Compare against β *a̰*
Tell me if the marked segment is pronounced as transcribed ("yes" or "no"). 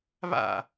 yes